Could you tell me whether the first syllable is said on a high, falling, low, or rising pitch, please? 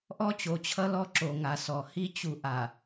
high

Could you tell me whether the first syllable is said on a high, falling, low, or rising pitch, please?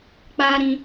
high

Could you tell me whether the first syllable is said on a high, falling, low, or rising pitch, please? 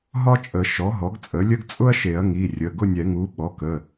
high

